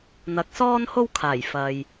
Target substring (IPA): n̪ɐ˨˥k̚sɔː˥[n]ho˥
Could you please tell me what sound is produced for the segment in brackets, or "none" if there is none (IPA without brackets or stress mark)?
n